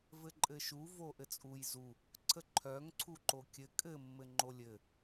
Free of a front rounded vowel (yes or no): no